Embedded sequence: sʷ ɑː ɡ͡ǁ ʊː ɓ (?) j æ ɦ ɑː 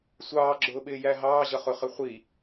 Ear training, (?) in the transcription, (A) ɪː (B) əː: A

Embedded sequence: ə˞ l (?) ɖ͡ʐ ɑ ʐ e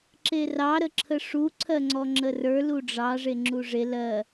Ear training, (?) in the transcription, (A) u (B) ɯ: A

